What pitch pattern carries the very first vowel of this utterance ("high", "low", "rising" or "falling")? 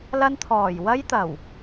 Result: high